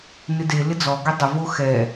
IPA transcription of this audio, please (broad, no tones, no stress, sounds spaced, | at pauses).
n ɪ d e l ɪ d͡z ɔ ɡ ɛ dˤ ʊ v o x ɛ